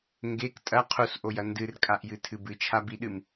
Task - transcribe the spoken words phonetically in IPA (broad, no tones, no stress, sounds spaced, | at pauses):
ŋ ɡ e k tʼ ɐ qʰ u s ʔ o j ɐ n d ɨ r kʼ a ʔ j ɨ tʰ ɨ b ɨ t͡ʃʰ a b i ɗ ɨ m